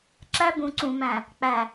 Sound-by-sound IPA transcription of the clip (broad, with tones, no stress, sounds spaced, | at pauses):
ǁ æ˦ b ũ˨ ǀ ũ˨ m æ̃˨ | k͡p æ˨